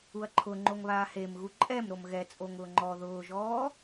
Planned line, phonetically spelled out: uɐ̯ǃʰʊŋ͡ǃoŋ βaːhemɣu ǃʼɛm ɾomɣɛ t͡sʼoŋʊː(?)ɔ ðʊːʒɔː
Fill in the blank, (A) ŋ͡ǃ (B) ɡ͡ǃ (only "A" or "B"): A